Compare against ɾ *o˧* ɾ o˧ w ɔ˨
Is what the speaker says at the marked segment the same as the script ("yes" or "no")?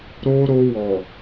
yes